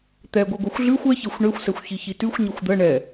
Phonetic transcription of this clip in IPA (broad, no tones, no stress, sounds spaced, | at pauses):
t̪ ɛ ɡʷ ɜ ɡʷ ɜ xʷ ɮ ʉ xʷ ɛ ç e xʷ ɳ e xʷ s ɛ xʷ ç i ç i t ʉ xʷ ɲ i xʷ d̪ ɜ ɳ ɛ